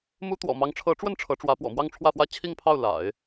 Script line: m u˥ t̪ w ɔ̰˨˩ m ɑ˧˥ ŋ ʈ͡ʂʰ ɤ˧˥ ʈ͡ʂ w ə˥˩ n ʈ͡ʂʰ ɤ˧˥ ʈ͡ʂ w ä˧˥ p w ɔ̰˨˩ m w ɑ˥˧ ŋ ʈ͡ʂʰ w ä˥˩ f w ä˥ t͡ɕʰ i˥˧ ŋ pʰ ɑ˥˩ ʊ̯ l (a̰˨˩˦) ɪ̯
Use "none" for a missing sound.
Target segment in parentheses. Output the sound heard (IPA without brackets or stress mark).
a̰˨˩˦